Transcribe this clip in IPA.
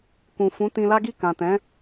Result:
k ũ˨ f ũ˨˦ t ĩ˧ l a˦ ɡ i˦˨ k ã˨ t ɛ̃˨˦

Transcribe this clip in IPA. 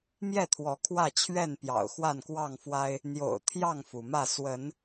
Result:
m j ɛ˥˨ t̪ʰ w ɔ˨˦ kʰ w ä˥˨ t͡ɕʰ ɥ ɛ˥˨ n p j ɑ̰˨˩ ʊ̯ x w a˥˨ n k w ɑ˥˨ ŋ f w a˦ ɪ̯ | n̪ j o̰˨˩ ʊ̯ t̪ʰ j ɑ˥˨ ŋ f u˩ m ä˥˨ s w ə˨˦ n

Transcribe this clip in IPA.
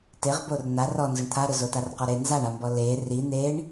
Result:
t e ʁ b o r n̪ a r ɔ n z ʊ ɳ t̪ʰ a ɾ ʊ z o t a r q ɔ ɾ e n z a ɳ a m b ɔ l e r i n̪ e ɳ

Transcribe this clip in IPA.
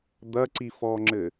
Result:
d̪ ɐ ǀ i f ɔ ŋ͡ǁ ɘ

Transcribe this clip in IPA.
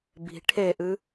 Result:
b i̤ ʈʰ e ʔ ɨ

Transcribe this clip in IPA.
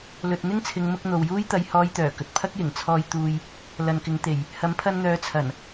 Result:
l ɵ˨ t̚ n̪ ɪ˥ ŋ t͡sʰ ɪ˨˧ ŋ m ʊ˧ k̚ n̪ o˨ w j uː˥ j t̪ ɐ˧ j h ɔː˧ j t̪ œː˨˩ k ɵ˨ t̚ pʰ ɐ˥ k̚ j ɪ˨˩ ŋ t͡sʰ ɔː˧ j t̪ uː˧ j | l ɐ˨ n k ɪ˨˧ ŋ t̪ e˨˩ j | h ɐ˨˥ m pʰ ɐ˧ n n̪ œː˨˥ t͡sʰ ɐ˨˩ n

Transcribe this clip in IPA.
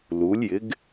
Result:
l u˩˧ lʲ j ɪ˩˧ ɡ

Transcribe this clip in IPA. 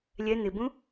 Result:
lʲ ɛ n̪ ɪ b ũ

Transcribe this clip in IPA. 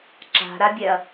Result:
ǁ a̤ ɾ a bʲ ɛ ɐ̯

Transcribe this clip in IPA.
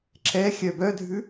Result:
ǁ ɛ xʲ œ b œ dʱ ʉ

